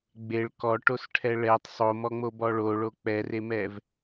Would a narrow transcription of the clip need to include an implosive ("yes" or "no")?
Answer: no